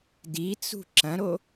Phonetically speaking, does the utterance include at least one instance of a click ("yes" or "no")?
yes